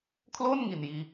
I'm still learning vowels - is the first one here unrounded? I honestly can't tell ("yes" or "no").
no